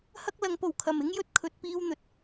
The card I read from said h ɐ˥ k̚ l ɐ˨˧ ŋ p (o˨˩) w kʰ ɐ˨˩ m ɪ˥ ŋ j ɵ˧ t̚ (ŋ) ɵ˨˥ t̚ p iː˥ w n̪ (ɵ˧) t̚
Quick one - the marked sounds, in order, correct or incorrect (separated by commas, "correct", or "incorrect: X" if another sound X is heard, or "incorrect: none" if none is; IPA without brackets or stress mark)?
correct, incorrect: kʰ, incorrect: ɵ˨